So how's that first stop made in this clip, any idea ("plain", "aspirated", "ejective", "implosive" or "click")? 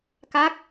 plain